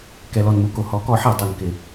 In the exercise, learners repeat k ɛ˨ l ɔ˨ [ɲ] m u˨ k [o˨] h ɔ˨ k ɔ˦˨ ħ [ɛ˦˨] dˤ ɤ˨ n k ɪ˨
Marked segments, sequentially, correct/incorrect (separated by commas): incorrect, correct, correct